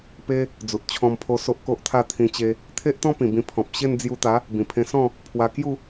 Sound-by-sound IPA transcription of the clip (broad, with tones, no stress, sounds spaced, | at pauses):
p e˦ | d͡z u˨ t̚ t͡ɕʰ ɔ̃˧ m pʰ o˧ s o˦ ʔ k o˦ ʔ t̪ʰ a˥˧ t̪ʰ ĩ˧ t͡ɕ e˧ | t̪ʰ e˦ ʔ t̪ ɔ̃˦ p ĩ˨˩ b ĩ˧ pʰ ɔ̃˨ p̚ ɕ e˥˧ n d͡z j u˧ t̪ a˨˦ | b ĩ˨˩ pʰ ẽ˧ s ɔ̃˥˧ | pʰ w a˧ k j u˥˧